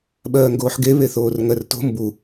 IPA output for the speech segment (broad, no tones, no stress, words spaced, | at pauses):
ɓɜːŋɡoːħɡe βeθoːrŋɜrto̤ mbu